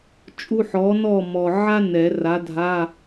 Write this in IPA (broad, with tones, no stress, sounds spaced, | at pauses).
t͡ʃʼ u˧˥˧ ħ ɔ˨˥ n ɔ˥˨ m ɔ˨ ʕ a˥ n ɛ˨˩˦ r a˨˥ dʱ a˧˥˧